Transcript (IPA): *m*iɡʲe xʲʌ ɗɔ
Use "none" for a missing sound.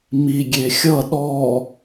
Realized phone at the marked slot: m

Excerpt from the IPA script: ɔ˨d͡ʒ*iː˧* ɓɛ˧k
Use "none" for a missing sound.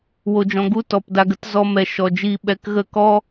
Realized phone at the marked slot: iː˧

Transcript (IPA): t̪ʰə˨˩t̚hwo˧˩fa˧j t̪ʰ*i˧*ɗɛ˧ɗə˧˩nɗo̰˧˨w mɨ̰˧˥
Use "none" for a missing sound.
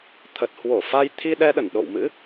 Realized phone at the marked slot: i˧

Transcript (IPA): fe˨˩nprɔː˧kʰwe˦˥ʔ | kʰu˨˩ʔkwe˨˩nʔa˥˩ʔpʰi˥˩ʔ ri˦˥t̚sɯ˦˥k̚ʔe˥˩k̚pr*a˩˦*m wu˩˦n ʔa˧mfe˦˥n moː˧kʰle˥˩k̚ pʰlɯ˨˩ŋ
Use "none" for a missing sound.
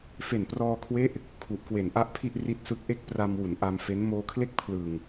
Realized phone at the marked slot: a˧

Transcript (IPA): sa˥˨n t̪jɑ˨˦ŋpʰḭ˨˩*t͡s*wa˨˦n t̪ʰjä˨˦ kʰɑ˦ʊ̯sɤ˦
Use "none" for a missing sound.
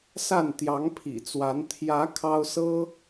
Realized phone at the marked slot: t͡s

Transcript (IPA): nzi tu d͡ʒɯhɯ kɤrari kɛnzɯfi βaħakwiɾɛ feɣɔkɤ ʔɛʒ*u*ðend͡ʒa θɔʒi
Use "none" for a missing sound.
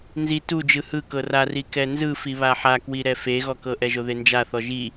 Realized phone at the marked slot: o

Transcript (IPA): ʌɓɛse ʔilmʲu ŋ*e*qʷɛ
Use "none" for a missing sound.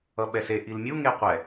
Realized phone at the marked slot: e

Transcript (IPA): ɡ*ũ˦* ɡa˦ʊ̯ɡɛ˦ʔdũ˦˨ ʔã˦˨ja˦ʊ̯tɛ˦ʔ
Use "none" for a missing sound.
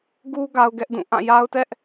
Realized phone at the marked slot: u˦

